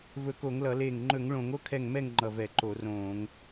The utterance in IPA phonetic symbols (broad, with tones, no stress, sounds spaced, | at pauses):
v ɵ˧˩ k o˧˩˧ ŋ l ʌ˧˩˧ l eː˧˩ ŋ ŋ͡ǃ ɵ˧˩˧ ŋ ɭ õ˧˩˧ ŋ o˥˩ kʰ ɛ˧˩ ŋ m ɛ˥˩ ŋ ŋ͡ǃ ʌ˧˩ v ɛ˧˩˧ ǃ o˧˩˧ r õː˧˩˧ ŋ